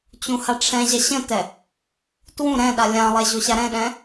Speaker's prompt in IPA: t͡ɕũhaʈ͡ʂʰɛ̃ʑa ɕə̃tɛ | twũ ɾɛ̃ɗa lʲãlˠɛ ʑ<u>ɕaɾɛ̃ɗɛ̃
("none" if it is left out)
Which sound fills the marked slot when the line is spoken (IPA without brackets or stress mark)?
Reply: o